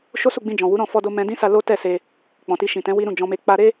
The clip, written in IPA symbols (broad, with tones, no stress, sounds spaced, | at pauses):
ʃ o˦ s u˦˨ ɡ͡b ĩ˧ d͡ʒ ɔ̃˨ w u˨˦ ɾ ɔ̃˦˨ f ɔ˧ d o˧ m ɛ̃˧ d ĩ˦ s a˧ l o˦ t ɛ˦˨ s e˧ | k͡p ɔ̃˨ t i˧ ʃ ĩ˨ t ɛ̃˨˦ w i˦ ɾ ũ˦˨ d͡ʒ ɔ̃˧ m e˧ k͡p a˧ ɾ e˦